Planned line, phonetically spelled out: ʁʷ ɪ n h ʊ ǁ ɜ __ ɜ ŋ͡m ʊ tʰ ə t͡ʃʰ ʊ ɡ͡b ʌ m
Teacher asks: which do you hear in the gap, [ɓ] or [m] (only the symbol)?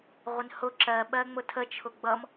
ɓ